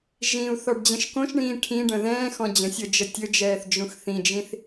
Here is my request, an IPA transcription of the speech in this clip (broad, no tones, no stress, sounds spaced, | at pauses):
ʒ ĩ u̯ θ ɔ ɖ d͡ʑ ə̃ ʃ k õ ʃ ɳ ĩː ʈʰ ĩ ɖ ə̃ ð ɛ̃ː x ɔ̃ d͡ʑ ə̃ sʲ ɤ d͡ʒ ə tʲ ɵ d͡ʒ ɛː θ d͡ʒ ũ x θ ĩ d͡ʒ ĩ θ